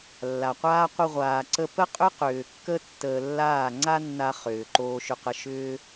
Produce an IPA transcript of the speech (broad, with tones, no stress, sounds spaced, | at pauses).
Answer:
lː a˨ qʷ aː˦ qʷ ə˧ ʁʷ aː˨ ǀ ə˧ p ə˦ qʼ ʏ˦ q ʏː˨ kː ə˦ tː əː˧ lː aː˦˨ ŋ͡ǀ a˦ nː a˧ χ ʏː˨ ǃ oː˧ ʃ ʏ˧ q ə˧ ʃ ʏː˦